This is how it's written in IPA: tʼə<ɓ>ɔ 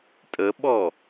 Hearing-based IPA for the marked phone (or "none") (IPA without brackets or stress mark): ɓ